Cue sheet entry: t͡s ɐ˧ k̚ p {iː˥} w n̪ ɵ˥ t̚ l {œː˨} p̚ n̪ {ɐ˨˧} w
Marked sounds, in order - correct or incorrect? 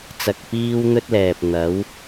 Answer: correct, incorrect, incorrect

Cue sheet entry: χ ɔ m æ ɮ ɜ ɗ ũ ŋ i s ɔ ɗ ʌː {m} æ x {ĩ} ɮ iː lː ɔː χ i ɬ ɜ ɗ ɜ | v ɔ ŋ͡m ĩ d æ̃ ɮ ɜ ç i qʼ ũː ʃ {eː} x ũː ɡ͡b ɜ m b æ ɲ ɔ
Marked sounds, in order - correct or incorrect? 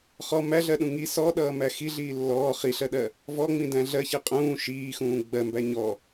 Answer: correct, incorrect, incorrect

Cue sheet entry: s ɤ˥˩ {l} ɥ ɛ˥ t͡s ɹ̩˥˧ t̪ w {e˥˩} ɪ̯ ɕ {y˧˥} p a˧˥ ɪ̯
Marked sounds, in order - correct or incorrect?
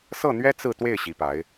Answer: incorrect, correct, incorrect

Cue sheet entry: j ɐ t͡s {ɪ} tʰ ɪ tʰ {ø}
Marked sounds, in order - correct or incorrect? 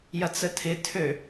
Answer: incorrect, correct

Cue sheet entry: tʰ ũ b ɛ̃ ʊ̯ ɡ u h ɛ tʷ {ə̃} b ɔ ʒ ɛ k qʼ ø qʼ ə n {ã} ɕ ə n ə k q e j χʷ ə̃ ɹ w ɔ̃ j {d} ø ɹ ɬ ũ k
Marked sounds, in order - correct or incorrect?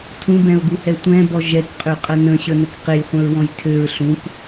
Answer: incorrect, incorrect, incorrect

